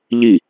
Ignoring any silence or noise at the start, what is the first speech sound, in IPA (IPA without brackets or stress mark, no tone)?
ʎ